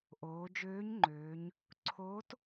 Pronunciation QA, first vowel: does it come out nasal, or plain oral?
oral